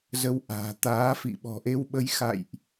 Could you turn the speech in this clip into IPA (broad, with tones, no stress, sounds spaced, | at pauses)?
z ə˧ w ʔ a̤ː˨˩ t̪ aː˨˦ f ḭ˧˨ ɓ ɔ̤˨˩ ʔ e˧ w ɓ ə˨˦ j x a̰˧˨ j ʔ